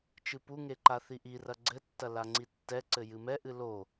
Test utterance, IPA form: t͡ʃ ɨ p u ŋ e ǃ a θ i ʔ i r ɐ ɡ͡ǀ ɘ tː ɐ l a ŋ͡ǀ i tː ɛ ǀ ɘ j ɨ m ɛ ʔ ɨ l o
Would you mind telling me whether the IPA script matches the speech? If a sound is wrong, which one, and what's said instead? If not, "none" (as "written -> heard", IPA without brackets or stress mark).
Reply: none